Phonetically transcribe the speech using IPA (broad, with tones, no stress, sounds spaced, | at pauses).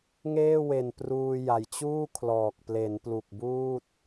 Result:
ŋ eː˥˩ w e˨˩ n p r uː˧ j a˨˩ j t͡ɕ uː˥˩ kʰ l ɔː˨˩ k̚ p l e˩˦ n p l u˨˩ k̚ b uː˥˩ t̚